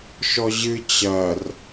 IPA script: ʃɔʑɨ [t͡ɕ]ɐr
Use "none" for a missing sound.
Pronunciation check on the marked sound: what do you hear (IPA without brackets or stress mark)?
t͡ɕ